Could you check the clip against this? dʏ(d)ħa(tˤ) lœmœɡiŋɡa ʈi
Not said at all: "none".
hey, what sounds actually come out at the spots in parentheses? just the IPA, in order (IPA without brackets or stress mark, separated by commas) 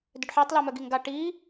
ɖ, tˤ